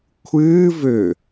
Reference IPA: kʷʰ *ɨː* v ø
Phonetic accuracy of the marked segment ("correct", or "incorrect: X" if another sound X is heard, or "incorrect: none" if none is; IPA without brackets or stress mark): correct